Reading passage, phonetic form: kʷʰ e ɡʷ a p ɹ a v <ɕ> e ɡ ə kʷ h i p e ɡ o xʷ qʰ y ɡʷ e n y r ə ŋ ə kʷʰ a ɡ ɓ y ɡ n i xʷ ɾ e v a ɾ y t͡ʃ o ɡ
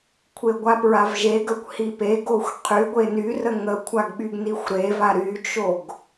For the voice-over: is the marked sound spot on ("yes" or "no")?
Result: no